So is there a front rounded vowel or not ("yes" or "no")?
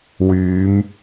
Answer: yes